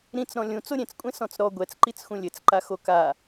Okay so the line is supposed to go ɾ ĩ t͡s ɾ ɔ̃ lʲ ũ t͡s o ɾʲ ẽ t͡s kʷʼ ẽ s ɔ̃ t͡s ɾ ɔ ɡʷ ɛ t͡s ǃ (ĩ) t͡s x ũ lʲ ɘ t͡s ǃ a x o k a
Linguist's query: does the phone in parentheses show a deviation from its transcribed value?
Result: yes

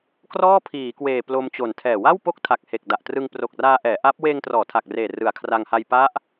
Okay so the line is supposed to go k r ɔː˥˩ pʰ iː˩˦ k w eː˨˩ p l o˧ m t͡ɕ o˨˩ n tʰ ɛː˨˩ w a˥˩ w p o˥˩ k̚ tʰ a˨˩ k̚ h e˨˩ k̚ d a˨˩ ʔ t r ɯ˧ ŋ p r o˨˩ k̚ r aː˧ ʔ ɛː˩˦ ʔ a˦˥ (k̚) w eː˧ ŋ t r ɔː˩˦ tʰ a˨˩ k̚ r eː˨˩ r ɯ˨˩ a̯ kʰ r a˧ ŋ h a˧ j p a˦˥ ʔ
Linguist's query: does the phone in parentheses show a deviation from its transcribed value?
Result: yes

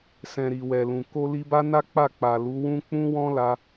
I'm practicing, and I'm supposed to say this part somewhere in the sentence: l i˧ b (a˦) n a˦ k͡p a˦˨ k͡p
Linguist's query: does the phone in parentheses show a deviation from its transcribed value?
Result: no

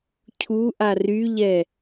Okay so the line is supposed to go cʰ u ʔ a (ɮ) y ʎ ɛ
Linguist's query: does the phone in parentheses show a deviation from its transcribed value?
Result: yes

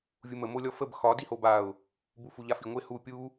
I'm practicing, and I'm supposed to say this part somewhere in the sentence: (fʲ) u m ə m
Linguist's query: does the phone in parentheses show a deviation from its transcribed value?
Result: yes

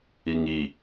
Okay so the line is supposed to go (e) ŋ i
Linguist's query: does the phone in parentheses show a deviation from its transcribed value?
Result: yes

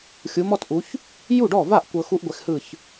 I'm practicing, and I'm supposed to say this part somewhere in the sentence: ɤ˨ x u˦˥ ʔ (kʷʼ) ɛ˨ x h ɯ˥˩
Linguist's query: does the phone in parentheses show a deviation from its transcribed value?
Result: yes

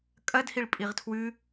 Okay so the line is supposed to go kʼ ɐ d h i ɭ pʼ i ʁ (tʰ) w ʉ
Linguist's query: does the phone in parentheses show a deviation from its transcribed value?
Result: no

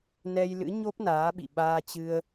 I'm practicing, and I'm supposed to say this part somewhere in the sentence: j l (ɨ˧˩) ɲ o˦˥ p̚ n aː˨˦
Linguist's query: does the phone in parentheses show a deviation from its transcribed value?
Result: yes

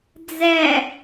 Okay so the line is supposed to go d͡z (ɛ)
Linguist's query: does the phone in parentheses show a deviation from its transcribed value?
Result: no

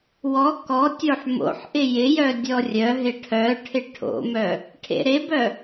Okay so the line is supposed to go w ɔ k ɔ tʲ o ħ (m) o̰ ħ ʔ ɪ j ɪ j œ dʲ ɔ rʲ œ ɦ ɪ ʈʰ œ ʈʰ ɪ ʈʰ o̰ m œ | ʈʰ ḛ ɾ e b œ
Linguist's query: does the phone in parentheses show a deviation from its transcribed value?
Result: no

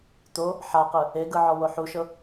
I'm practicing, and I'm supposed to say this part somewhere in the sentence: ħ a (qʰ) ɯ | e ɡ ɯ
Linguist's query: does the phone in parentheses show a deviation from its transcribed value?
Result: yes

